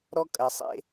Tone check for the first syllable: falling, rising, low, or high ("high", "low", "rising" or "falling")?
high